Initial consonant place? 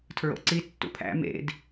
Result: alveolar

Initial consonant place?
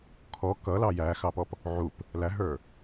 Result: velar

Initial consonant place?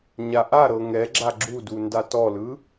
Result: palatal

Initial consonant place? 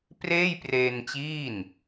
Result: labial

